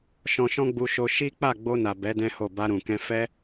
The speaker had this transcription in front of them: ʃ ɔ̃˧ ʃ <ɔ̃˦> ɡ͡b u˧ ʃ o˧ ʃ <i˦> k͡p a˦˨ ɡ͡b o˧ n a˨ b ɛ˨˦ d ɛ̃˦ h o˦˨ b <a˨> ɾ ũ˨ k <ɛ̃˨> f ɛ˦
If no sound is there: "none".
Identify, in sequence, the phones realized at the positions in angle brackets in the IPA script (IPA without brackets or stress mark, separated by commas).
ɔ̃˦, i˦, a˧, ɛ̃˧